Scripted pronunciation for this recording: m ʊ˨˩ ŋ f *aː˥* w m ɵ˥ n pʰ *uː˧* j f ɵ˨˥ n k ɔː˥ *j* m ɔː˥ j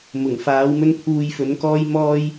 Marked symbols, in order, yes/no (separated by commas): no, yes, yes